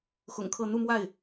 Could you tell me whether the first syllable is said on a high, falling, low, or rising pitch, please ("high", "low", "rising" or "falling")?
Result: low